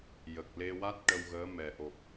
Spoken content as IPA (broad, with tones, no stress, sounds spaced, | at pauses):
j ə˨˩ k̚ l e˧ w a˦˥ t̚ ʈ ə˧ w ɣ əː˧˥ m ɛ˨˩ ʔ o˨˩ p̚